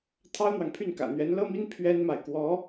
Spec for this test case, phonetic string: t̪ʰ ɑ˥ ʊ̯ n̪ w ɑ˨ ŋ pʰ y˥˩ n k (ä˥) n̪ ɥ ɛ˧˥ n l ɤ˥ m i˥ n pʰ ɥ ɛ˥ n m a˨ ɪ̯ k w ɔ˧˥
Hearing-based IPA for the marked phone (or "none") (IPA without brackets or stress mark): ä̰˨˩